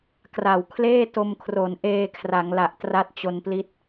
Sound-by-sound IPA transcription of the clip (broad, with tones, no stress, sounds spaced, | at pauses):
k r a˨˩ w kʰ l eː˥˩ t o˧ m kʰ r o˩˦ n ʔ eː˧ kʰ r a˩˦ ŋ l a˨˩ ʔ t r a˦˥ t̚ t͡ɕ o˧ n p l i˦˥ t̚